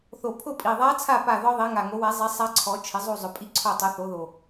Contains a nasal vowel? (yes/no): no